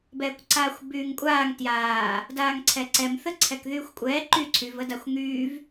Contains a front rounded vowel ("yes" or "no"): yes